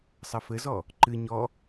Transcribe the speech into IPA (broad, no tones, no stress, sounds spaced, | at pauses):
sˤ ɐ f ɘ z ɔ | ǃ ɨ ɲ ɔ